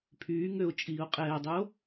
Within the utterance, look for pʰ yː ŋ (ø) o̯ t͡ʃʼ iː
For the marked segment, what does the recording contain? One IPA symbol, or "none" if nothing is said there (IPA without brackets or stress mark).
ø